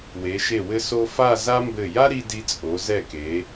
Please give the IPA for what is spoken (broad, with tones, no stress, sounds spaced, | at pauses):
w e˩˧ ʃ e˧˩ w ɘ˧ s o˧ f a˥˧ z a˥ m b ɘ˧˩ j a˥ ɾ i˧ d i˧ t͡sʼ o˩˧ z ɛ˧˩ k e˩˧